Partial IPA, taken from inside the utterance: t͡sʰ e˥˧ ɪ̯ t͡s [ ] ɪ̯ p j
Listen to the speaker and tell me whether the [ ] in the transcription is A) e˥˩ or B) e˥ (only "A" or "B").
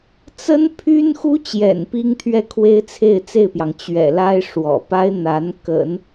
A